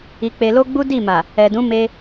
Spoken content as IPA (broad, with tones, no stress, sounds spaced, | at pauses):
i˧ k͡p e˧ l o˦ ɡ͡b u˦ d i˦˨ m a˨ | ɛ˨ d ũ˨˦ m e˧